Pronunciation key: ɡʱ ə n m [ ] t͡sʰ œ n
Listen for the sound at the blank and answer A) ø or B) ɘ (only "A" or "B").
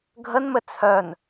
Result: B